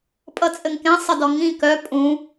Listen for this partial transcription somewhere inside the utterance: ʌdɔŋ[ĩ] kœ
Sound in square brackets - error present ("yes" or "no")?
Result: no